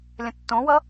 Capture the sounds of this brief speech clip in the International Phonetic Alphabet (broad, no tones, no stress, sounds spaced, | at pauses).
lʲ ə̃ tː õ w ʌ